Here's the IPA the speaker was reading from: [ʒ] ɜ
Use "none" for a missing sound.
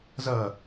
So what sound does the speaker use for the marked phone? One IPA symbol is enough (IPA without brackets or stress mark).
z